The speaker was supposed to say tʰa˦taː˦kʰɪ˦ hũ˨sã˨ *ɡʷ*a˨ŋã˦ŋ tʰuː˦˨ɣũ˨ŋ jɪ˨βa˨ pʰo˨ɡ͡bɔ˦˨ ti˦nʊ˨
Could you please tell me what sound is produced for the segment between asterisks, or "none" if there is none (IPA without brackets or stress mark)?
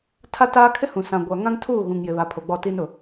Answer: ɡʷ